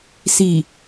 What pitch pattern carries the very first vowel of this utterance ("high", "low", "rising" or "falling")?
low